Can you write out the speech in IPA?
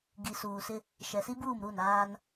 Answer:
ɡ i˨ s uː˨ s ɪ˦ | ʃ ɛ˨ s i˦ b uː˦˨ m ɾ u˦˨ n aː˦ n

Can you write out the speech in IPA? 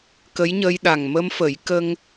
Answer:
k ə˧˥ j ɲ ə˧ j ɗ a˨˩ ŋ m ə˧ m f ə˨˩˦ j k ə˧ ŋ

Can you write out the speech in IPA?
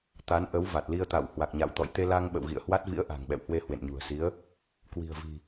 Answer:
t̪ a˨˦ n ʔ ə˨˦ w v a˨˩ t̚ l i˧ ə̯ t̪ a̰˧˨ w h w a˨˩ k̚ ɲ a̰˧˨ w t̪ ɔ̰˧˨ j t̪ e˧ l a˧ ŋ ɓ ə̰˧˨ w ɣ ḭ˧˨ ə̯ h w a˦˥ t̚ v ḭ˧˥ ə̯ ʔ a̤˨˩ ŋ ɓ ɛ̰˧˨ w h w e˧ h w ḛ˧˨ n ɲ ṳ˨˩ ə̯ s i˨˦ ə̯ | k w i̤˨˩ ə̯ v i̤˨˩

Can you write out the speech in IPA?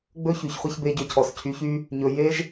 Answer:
ɡ͡b ɵ˦ ç y˨ ç χʷ i˧ ç b e˧ ɟ ø˧ cʰ ɔ˨ s cʰ y˨˦ ç y˦ | ɲ ɵ˨ j e˦ ʒ

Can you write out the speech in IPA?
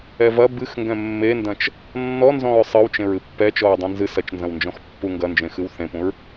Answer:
ɛ v ɐ b ɨ x ŋ ɡ ɛ̃ mː e n d ɐ̃ t͡ʃ | nː ɔ n z ɔ̃ ɹ sˤ ɨ w t͡ʃ ẽ ɹ ɨ pː ɛ t͡ʃ ɔ ɹ dˤ ɛ̃ n z ɨ s ɐ t͡ʃ n z ɐ̃ w n d͡ʒ ɔ̃ x pː u ŋ ɡ ɐ n d͡ʒ ẽ x ɨ w θ ẽ p ũ ɹ

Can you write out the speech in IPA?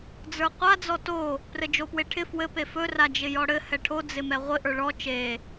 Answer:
d͡z ə˞ qʷ a d͡z ɔ t o | p r ɘ d͡ʒ o p w e ʈʰ ɪ f w ɘ p e f ɵ r a d͡ʒ ɪ j ɔ ɽ ɘ h ɛ ʈʰ o d͡z ɪ m ɛ ʁʷ ɪ ʔ ə˞ ɭ ɔ t͡ʃ e

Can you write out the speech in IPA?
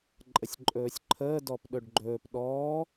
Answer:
ǃʼ ə sʲ ǃʼ ɵː sʲ ǃʰ əː d ɔ p ɗ ɵ ɖ ɡ͡ǃ ɵː p ɗ ɔː

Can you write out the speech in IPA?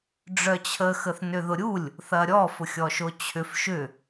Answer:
ɖ͡ʐ œ t͡ɕʰ ə x ə θ n ʏ ð ʊ ɾʲ u lʲ | θ ɐ ɾʲ ɔ f ʊ xʲ ɔ ʃ o t͡ɕʰ ʏ f ʃ ʏ

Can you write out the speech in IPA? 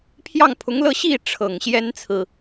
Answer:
pʰ j ɑ˥˩ ŋ pʰ ʊ˧˥ ŋ l ɤ˥˧ ɕ i˥˩ ʈ͡ʂʰ ɤ˨˩ ŋ ɕ j ɛ˥ n t͡sʰ ɹ̩˨

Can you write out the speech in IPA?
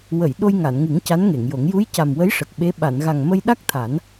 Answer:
w ə˨˩˨ j ɗ o˧ j ŋ a˨˩˨ n ŋ ɨ˨˩˦ ŋ c a˧˥ n ŋ e˨˩˨ ŋ j o˨˩˦ ŋ j u˧˥ j c a˨˩ m w ə˧˥ j ʂ ə˨˩ k̚ ɓ e˧˥ ɓ a˨˩˨ n ɣ a˨˩ ŋ m ə˧ j ɗ a˦˥ k̚ t̪ʰ a˨˩˦ n

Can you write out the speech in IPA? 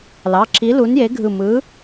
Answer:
l ɑ˩˧˩ ǁʰ i˨˥ l u˨˥ n j e˨˥ ɡʱ ɯ˧˩ m ɯ˨˥

